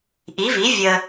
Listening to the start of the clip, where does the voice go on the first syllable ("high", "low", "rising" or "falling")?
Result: rising